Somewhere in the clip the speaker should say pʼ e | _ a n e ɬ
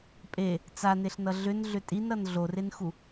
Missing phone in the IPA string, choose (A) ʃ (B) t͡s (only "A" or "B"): B